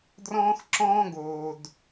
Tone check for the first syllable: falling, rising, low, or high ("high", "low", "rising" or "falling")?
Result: high